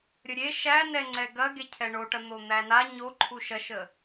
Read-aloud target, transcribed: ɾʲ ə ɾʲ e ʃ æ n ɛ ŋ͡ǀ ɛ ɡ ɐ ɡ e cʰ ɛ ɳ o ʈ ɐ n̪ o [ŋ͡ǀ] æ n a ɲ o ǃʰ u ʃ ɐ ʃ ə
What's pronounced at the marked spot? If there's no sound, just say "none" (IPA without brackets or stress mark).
n̪